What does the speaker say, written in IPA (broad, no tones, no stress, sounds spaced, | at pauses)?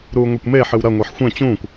ɾ uː ŋʷ ɛ kʷ m eː ħ ɨ w ɾ ɐ ŋʷ ɛ ħ xʷ ɛ̃ t͡ɕ ũː kʷ